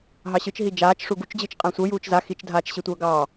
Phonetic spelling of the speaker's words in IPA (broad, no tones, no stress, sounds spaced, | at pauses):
ɦ ɑ ɕ ɯ t͡ʃ ɦ i d͡ʒ aː t͡ʃ ʂ u ɡ u t͡ʃ d͡ʑ ɯ t͡ʃ qʼ ã sʷ ɤ j uː t͡ʃ z a x i t͡ʃ dʱ aː t͡ʃ ɕ i tʷ ɤː ɡ ɑː